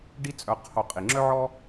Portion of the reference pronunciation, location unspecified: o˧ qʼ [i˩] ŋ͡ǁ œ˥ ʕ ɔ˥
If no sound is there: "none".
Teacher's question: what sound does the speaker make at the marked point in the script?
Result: i˩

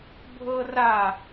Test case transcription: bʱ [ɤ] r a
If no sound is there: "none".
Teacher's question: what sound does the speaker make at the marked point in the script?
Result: ɤ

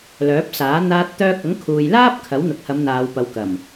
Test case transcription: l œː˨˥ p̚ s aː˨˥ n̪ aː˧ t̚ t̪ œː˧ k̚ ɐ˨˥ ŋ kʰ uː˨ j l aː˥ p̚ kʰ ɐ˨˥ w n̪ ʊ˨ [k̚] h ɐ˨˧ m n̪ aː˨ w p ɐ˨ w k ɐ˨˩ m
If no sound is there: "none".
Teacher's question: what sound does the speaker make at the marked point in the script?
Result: k̚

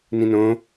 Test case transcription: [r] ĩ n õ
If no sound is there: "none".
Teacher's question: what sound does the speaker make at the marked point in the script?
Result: n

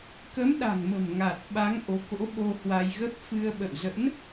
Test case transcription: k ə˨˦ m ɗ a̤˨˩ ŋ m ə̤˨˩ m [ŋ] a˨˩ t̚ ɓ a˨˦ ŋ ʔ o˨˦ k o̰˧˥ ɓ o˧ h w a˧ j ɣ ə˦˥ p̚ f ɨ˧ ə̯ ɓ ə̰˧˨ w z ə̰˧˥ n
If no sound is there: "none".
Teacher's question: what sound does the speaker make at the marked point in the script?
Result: ŋ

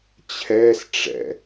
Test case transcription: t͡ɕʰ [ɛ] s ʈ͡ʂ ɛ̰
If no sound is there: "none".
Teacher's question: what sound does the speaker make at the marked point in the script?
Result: ɛ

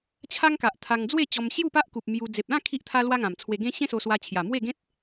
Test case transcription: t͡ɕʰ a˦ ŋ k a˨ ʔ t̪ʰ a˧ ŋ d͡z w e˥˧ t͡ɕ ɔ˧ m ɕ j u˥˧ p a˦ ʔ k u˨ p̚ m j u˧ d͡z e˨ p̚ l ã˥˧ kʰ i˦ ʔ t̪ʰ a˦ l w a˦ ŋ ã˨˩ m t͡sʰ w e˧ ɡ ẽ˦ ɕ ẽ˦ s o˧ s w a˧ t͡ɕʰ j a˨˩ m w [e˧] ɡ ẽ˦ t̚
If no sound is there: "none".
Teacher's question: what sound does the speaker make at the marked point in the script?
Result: e˥˧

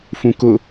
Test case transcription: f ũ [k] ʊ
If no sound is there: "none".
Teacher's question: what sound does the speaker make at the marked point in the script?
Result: k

